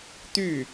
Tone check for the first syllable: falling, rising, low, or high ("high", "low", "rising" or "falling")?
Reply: falling